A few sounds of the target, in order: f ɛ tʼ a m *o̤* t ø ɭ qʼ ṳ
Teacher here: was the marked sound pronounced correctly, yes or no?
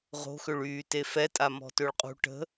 no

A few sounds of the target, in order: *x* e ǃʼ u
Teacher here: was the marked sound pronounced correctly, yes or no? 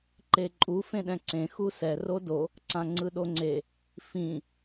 no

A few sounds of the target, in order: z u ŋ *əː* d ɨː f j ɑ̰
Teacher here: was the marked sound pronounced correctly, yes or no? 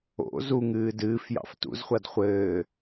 no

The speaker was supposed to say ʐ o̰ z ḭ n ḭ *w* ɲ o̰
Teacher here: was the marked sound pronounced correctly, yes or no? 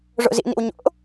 yes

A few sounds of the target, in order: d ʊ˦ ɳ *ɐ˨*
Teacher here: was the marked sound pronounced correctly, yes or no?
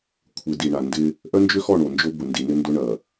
yes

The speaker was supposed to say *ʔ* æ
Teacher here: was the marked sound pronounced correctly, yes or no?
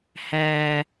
no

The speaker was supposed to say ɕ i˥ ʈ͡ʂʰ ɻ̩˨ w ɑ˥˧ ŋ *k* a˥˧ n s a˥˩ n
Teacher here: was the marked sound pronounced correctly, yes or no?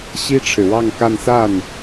yes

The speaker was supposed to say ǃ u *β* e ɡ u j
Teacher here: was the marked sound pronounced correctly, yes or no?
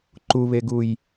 yes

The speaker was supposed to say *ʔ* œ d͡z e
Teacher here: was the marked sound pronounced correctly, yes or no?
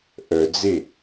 yes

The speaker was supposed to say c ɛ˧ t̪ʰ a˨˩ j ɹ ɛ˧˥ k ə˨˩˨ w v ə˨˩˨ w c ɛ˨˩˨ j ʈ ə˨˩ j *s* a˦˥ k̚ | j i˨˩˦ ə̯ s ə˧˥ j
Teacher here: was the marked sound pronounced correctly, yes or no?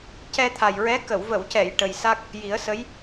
yes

